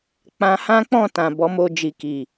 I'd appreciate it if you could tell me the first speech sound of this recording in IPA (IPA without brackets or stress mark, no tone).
k͡p